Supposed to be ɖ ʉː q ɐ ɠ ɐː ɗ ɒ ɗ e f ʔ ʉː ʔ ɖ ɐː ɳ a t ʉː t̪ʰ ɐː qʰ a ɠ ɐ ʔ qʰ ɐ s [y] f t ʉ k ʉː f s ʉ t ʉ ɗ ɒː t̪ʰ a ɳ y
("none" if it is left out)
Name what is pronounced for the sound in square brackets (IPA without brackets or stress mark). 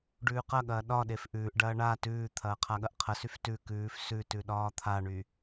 y